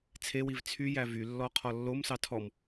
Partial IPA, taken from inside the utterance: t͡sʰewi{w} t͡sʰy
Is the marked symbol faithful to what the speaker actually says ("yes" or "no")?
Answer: no